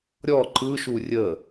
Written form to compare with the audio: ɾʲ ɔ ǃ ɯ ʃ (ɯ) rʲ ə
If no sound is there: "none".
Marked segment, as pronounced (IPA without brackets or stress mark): u